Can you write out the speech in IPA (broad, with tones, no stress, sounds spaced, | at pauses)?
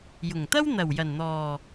j ʊ˨˩ ŋ t̪ ɐ˥ w n̪ ɐ˨˩ w j ɐ˨˩ n n̪ ɔː˨˩